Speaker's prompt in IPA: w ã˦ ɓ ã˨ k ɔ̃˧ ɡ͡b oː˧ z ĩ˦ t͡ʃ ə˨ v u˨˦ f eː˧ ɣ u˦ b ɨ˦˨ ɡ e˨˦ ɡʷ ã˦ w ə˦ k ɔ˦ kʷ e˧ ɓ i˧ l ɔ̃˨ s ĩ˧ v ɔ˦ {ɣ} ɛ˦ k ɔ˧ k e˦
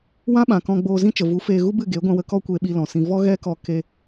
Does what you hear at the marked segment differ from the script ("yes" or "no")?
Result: no